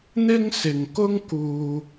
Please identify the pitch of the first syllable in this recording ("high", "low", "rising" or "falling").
high